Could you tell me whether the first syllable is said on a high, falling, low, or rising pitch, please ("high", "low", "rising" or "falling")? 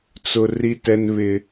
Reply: high